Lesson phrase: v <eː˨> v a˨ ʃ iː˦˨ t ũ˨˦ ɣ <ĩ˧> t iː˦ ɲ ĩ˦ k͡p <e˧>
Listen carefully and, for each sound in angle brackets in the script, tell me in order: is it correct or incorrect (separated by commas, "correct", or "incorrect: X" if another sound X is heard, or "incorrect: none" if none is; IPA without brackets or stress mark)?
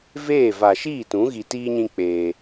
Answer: incorrect: eː˦˨, incorrect: i˧, incorrect: eː˧